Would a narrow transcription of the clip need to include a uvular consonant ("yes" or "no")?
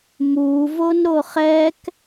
yes